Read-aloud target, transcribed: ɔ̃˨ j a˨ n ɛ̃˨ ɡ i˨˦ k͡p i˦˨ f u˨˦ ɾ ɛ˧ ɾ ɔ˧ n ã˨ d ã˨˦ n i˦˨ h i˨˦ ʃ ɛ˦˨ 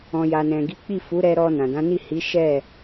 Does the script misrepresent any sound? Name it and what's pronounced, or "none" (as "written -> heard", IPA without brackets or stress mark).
none